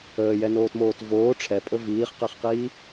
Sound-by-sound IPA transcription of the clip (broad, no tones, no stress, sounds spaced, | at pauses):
əː j ɛ n oː t m oː t v oː ʈ͡ʂʰ ɛ pʼ ɵ v iː χ q ɛ χ q iː